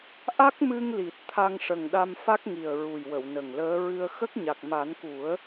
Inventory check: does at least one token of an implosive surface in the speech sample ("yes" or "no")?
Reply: yes